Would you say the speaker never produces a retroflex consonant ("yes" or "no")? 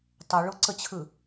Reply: no